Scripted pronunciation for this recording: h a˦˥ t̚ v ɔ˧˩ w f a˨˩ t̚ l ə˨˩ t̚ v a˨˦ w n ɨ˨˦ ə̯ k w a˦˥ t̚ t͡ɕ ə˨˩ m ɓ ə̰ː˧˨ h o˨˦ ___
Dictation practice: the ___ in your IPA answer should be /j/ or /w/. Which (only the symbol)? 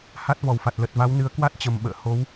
w